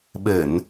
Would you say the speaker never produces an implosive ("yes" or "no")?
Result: no